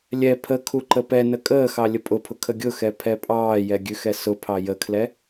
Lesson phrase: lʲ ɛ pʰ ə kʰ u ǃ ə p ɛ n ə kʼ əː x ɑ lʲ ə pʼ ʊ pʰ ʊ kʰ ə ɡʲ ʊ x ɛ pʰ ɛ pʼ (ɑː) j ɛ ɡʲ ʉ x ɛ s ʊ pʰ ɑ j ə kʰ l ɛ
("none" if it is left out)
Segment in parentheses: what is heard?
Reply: ɑː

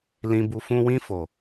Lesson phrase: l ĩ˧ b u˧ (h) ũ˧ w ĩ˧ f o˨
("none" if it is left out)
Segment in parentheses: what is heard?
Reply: f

